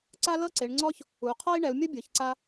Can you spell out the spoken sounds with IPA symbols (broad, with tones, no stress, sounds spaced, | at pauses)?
ǀ a˥ l ɤ˥ ǀ e˨˦ ɳ ŋ͡ǀ ɔ˥ ç | u˨˦ qʰ ɔ˥ i̯ ɳ ɛ˨˦ u̯ mʲ ɤ˥ bʲ ɯ˨˦ ç ǀ a˥